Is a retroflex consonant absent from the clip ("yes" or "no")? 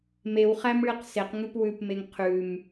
no